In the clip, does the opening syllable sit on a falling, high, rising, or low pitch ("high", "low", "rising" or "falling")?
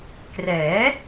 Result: rising